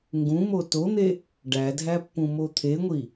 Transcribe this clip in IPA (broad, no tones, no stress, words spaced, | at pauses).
ŋɡũmo ton̪e | ɖædʱæpːũmo t̪ʰeŋʷi